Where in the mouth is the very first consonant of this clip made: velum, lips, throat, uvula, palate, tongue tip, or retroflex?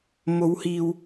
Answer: lips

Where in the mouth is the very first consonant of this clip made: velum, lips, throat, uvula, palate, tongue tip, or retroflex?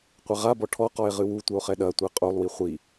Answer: uvula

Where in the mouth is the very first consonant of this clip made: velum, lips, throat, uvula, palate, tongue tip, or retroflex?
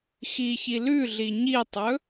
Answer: velum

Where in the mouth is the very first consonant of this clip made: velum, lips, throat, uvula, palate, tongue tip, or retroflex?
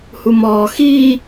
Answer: throat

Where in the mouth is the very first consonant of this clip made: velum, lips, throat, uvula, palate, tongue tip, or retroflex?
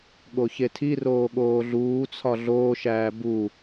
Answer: velum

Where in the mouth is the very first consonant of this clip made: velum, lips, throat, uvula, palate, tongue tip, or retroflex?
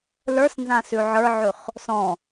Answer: tongue tip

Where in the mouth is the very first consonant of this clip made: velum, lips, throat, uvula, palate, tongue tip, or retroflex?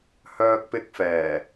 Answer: throat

